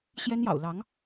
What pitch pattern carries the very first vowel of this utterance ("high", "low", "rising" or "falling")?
high